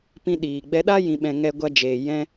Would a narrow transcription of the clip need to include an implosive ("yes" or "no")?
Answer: yes